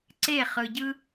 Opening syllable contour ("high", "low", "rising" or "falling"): falling